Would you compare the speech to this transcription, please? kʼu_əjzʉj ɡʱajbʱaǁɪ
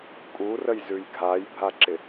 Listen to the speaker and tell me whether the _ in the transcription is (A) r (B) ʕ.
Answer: A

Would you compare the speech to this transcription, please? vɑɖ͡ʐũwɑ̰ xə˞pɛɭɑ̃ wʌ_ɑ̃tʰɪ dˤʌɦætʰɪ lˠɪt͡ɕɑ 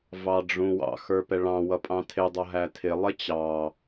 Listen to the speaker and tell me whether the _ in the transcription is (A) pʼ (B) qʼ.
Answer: A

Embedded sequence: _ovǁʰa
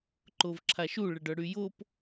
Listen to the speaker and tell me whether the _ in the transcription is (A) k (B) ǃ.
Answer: B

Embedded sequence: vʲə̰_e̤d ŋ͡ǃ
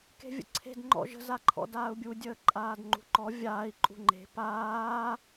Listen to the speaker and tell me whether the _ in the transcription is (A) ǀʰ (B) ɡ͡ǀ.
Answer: A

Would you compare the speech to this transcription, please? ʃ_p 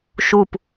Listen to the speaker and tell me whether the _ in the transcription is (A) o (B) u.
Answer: B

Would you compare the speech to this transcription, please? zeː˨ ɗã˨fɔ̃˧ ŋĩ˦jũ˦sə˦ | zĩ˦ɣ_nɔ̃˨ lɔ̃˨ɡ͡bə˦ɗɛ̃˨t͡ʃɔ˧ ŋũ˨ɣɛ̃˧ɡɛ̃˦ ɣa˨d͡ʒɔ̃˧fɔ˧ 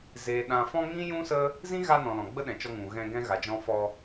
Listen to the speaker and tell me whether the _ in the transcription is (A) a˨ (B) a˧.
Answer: B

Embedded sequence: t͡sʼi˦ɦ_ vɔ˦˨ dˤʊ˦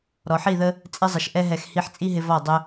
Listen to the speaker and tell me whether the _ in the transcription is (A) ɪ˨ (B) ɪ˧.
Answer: B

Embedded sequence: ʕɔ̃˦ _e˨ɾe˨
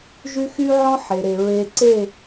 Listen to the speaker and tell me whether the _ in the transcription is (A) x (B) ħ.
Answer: B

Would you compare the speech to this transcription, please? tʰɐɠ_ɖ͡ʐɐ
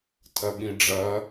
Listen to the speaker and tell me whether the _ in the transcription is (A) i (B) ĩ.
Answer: B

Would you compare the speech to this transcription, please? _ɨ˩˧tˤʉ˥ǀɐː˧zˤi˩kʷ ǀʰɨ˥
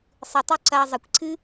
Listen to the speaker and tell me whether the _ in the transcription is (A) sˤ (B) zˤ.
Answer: A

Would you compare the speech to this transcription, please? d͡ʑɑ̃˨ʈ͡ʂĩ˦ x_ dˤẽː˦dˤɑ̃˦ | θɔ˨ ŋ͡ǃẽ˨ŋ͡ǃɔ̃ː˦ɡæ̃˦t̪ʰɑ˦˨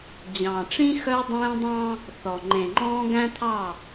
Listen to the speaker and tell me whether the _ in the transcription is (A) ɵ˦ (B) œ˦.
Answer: B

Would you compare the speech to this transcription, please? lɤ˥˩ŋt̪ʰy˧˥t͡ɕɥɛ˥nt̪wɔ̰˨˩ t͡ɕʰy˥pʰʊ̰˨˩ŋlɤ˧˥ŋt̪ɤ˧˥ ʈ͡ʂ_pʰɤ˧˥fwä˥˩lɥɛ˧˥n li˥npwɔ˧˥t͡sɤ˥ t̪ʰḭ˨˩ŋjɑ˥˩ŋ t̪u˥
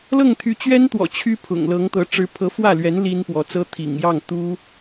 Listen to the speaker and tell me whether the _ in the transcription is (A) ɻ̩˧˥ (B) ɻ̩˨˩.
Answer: A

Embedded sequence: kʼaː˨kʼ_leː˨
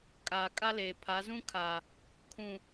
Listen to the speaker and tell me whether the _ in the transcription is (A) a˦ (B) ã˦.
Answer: A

